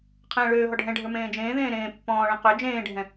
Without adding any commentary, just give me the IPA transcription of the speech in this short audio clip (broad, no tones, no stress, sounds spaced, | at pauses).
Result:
qʰ ɛ̃ː ɭ øː ɦ ɔ ɖʱ ɛ̃ ɖʱ ə˞ m ẽː d͡ʒ ẽː ð ẽː ɾ ẽː pː ɔ̃ː ɭ ẽ q ø d͡ʒ ẽː ɖʱ ɛ̃